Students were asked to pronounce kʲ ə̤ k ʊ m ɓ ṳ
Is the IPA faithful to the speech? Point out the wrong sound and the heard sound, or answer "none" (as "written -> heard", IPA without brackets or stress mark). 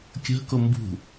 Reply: ɓ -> b